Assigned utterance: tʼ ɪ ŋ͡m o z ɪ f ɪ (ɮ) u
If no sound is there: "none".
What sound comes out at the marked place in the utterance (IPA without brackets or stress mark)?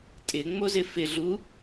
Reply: ɮ